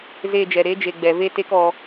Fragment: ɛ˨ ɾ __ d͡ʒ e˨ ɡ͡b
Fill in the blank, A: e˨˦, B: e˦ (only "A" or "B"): A